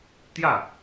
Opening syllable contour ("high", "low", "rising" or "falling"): falling